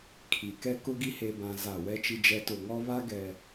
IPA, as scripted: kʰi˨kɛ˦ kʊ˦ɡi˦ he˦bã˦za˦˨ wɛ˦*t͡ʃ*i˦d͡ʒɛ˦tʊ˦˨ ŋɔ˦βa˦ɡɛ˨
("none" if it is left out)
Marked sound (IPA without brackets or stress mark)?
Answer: t͡ʃ